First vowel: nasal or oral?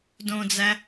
nasal